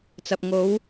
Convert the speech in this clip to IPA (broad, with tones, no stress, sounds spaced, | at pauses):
t͡s ɐ˨ p̚ ŋ o˨˥ w